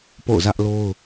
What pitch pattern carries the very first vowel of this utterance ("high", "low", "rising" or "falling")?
falling